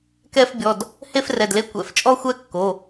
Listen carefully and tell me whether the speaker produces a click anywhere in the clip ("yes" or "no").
no